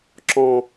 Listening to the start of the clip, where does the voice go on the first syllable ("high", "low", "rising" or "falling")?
high